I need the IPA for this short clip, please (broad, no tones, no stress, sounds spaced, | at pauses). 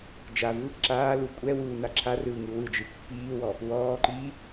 d͡ʒ a v ɯ | ǁ aː l u kʷʼ ɛ w uː n a ǁʰ a r ɯː ŋ ɯ w ɯ d͡ʒ ɯ pː iː w ɔ | w ɔː ǃ iː